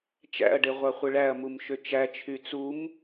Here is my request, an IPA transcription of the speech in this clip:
t͡ʃ æ̰ ɐ̯ ɖ e ʁʷ ɑ χʷ ɯ ɭ æ ɐ̯ m u m ʃ ø t͡ʃ æ t͡ʃʰ y t͡s u m

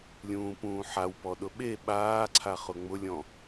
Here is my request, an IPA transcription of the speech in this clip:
lʲ ũː p ũː ħ a w p ɔ ɗ ʊ ɓ e ɓ aː ǀʰ a χ ʊ ŋ͡m ʊ lʲ ɔ̃

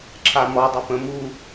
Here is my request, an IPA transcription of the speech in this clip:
ǁʰ a m ɔ dˤ ə p ə̃ m u

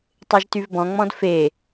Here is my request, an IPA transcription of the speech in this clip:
tˤ e ʒ t y v b ɔ̃ ŋ͡m ɔ̃ d f e

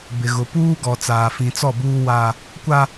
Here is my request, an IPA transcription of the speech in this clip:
b ɪ˨ ɣ ʊ˨ p uː˦ ɡ ɔ˨ t͡s aː˨ f ĩ˨ t͡s ɔ˦˨ b uː˦ w a˦ | kʷ a˦

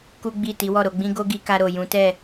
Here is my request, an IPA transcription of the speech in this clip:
k u˦ ɡ͡b i˦˨ t i˨˦ w ɔ˦˨ ɾ o˧ ɡ͡b ĩ˦ ɡ o˦ ɡ i˧ k a˧ ɾ o˨ j ũ˨˦ t ɛ˦˨

